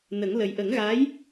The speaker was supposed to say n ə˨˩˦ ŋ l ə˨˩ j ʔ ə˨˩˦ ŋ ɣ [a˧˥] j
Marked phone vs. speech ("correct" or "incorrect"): correct